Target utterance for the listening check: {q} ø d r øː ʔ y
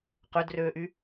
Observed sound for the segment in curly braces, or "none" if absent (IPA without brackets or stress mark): q